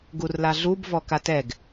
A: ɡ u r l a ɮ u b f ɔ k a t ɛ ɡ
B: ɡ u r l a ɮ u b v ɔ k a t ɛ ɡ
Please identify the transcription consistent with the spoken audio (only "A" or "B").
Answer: B